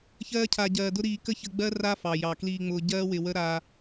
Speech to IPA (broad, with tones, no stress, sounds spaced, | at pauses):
ç ɜː˦ cʰ a˧ ɟ ɜː˧ d ʊ˦ ɾ iː˧ k ə˦ ç ə˧ ɡ͡b ɜ˦ r a˦ f ɑ˨ j ɑ˨ k l iː˧ ŋ͡m ʊː˧ ɟ ɜː˦ w ɪ˧ w ə˦ ɾ aː˧